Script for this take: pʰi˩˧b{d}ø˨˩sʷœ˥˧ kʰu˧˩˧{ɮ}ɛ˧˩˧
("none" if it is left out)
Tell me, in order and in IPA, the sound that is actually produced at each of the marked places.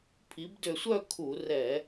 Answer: d, r

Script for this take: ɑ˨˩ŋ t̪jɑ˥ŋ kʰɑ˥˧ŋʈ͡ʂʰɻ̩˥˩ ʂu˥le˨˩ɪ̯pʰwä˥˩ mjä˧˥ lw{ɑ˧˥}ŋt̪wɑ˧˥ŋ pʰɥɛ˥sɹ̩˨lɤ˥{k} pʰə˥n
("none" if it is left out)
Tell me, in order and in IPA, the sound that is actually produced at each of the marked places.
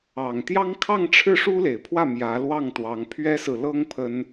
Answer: ɑ˥˩, ŋ

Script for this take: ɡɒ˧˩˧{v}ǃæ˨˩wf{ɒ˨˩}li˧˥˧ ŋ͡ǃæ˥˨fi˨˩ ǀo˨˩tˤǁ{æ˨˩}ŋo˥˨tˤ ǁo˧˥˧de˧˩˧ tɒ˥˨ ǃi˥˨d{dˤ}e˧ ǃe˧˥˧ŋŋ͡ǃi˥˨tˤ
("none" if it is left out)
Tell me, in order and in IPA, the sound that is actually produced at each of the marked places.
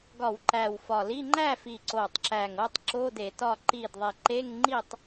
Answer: w, ɒ˨˩, æ˨˩, ðˤ

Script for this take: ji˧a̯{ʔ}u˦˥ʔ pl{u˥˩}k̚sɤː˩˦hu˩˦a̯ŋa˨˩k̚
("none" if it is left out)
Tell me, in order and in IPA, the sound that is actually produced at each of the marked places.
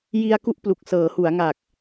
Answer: k, u˨˩

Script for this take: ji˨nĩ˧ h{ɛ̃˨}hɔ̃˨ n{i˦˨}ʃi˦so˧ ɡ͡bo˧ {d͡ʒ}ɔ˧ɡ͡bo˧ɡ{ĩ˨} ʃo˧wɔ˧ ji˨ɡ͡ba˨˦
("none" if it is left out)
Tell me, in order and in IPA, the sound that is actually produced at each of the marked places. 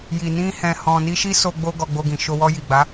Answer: ɛ̃˨, i˧, ɡ, ĩ˨

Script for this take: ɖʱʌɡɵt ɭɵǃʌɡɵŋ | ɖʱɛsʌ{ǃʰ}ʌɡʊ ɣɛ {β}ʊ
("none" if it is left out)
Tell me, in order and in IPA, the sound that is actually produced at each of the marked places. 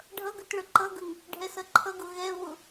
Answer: ǃʰ, β

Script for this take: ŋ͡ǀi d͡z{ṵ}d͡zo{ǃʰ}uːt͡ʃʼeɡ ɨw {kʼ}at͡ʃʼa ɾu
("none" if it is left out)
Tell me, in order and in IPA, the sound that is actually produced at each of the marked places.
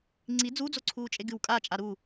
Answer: u, ǀʰ, kʼ

